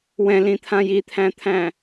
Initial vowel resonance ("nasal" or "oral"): nasal